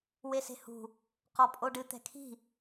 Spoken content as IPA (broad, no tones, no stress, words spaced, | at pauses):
wese̤hṳ | qɔpʼoɖɨ t̪ɛ̤kʰi̤